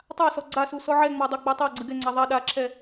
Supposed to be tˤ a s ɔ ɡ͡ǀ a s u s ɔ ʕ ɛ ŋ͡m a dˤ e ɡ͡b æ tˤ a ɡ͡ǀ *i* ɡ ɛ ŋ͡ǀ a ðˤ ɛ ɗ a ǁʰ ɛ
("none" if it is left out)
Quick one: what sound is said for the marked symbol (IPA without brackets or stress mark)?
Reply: ɨ